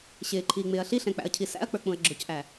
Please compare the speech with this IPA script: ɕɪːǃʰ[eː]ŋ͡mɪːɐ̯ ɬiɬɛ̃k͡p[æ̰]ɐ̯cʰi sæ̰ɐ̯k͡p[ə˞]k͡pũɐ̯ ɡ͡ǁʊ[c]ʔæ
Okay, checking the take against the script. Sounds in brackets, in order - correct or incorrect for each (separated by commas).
incorrect, correct, correct, correct